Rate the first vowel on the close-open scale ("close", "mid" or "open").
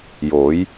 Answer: mid